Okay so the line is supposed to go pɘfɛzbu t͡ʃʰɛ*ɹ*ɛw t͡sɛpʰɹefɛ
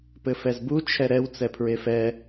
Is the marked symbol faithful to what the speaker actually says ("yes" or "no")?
no